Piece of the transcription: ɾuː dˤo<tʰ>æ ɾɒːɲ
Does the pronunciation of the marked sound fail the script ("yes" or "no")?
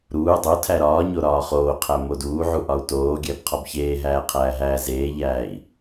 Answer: no